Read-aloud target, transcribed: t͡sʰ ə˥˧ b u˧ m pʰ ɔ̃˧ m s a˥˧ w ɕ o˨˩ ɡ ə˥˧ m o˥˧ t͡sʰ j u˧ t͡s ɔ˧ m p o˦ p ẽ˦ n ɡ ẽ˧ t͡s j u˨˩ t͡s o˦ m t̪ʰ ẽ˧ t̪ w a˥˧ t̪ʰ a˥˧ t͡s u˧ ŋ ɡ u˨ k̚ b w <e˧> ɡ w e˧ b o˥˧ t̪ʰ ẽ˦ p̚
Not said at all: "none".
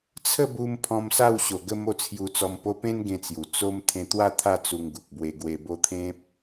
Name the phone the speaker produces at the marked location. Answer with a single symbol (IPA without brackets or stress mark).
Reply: e˧